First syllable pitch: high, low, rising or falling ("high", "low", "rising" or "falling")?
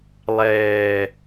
low